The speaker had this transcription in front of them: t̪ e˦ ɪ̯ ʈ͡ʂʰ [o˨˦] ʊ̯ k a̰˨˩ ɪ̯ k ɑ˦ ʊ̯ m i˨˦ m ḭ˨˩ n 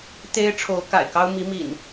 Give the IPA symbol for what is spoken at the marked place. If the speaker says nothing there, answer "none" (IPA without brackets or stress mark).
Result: o˨˦